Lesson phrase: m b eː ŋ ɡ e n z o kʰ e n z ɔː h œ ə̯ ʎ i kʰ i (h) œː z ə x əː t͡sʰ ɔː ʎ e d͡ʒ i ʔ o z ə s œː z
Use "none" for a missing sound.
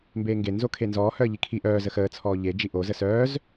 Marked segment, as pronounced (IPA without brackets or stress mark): ʔ